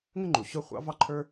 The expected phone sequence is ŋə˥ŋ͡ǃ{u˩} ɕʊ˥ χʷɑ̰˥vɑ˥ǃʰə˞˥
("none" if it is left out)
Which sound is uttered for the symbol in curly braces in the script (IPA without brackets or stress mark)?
u˩